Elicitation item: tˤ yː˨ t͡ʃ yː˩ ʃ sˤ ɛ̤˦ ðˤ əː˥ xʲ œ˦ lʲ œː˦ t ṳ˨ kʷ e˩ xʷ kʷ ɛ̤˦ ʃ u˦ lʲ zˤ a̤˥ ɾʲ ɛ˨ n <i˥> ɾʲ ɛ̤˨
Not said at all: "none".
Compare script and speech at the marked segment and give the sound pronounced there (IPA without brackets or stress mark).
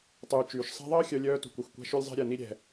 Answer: i˥